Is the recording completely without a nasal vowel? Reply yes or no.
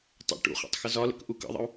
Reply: yes